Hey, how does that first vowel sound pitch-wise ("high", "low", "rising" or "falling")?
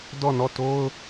falling